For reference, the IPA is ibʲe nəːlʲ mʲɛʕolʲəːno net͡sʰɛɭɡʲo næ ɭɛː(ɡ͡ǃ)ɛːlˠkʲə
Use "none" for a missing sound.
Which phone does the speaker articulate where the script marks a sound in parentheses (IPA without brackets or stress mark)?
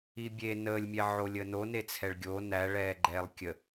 ɡ͡ǃ